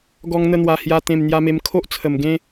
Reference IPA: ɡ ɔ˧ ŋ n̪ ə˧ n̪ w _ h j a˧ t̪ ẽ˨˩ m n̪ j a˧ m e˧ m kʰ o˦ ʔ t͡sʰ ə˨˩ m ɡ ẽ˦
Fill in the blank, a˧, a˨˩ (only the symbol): a˨˩